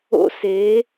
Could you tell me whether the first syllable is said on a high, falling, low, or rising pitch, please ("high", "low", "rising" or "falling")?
high